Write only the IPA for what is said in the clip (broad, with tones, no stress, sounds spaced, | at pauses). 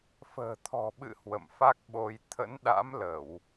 f ə̤ː˨˩ t̪ʰ ɔ̤˨˩ ɓ ɨ̰˧˨ h w ə̰˧˨ m f a˦˥ k̚ ɓ o˧ j t̪ʰ ə̰˧˥ n ɗ a̰˧˥ m l ə˧˩˨ w